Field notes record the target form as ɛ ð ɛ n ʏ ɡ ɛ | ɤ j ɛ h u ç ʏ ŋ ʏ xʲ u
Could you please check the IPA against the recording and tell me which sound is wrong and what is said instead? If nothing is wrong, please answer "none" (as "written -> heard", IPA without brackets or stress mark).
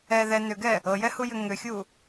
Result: ç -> j